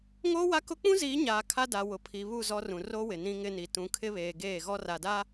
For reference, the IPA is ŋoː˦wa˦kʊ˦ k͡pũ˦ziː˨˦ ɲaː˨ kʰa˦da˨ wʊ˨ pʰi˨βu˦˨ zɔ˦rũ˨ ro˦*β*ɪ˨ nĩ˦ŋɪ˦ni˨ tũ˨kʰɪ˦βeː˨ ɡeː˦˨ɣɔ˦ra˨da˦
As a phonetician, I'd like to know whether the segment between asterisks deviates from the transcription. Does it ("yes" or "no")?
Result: yes